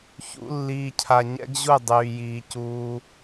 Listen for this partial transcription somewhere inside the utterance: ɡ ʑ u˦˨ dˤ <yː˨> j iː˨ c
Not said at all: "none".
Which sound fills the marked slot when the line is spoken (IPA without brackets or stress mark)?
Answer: yː˨